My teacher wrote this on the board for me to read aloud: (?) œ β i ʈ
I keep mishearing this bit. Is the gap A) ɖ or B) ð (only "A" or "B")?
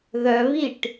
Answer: B